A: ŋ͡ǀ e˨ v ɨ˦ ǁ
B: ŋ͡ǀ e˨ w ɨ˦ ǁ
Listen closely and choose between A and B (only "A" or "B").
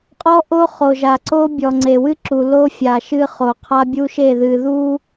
B